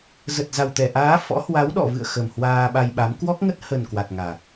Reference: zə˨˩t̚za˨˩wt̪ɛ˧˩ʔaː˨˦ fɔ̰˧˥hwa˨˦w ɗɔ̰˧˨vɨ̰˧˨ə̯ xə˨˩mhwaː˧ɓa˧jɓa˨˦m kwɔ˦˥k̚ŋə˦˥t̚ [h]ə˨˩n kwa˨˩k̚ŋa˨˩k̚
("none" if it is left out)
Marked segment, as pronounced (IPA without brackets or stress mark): h